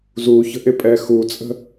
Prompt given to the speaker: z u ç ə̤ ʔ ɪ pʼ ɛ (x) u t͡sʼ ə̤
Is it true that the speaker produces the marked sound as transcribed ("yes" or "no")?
yes